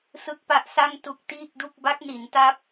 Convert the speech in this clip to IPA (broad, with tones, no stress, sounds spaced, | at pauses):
s ɯ˦˥ k̚ p a˦˥ ʔ s a˥˩ ŋ t u˦˥ k̚ t iː˥˩ k̚ d u˥˩ k̚ b a˦˥ k̚ n i˩˦ n t a˦˥ p̚